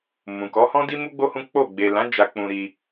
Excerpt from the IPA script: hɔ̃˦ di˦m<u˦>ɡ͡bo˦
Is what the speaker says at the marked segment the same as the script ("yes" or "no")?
yes